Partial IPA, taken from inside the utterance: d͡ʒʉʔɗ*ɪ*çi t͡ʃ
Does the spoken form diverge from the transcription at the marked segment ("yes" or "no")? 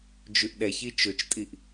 yes